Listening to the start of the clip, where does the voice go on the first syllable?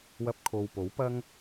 high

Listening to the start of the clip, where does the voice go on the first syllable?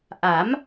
rising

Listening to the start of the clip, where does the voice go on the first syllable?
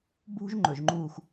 high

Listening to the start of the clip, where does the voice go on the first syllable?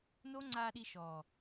high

